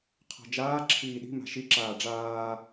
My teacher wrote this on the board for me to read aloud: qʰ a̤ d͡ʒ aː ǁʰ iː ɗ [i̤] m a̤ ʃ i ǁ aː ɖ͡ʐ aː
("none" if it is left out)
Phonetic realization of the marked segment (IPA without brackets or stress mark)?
i̤